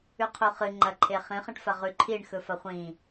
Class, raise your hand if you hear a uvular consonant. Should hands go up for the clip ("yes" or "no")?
yes